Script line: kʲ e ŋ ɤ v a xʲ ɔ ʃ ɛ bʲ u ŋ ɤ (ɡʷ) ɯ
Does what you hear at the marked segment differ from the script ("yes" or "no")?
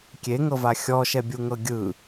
yes